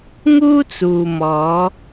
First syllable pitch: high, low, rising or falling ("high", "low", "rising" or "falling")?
high